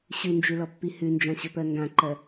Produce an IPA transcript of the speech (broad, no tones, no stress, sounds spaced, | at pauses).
ɕ ʉ n d͡ʒ ʉ l ɔ pː i h ʉ n d͡ʒ ã ɕ ɵ p ɜ ŋ ɡ ã ǃ ɜ